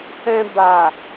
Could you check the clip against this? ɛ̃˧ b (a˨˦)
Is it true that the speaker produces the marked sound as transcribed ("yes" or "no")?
no